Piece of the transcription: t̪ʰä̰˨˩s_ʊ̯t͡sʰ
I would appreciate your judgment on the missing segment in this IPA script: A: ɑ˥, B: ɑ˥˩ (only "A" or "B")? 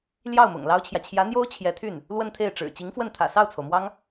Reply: B